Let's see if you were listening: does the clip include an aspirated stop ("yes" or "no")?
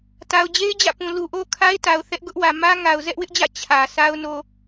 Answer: yes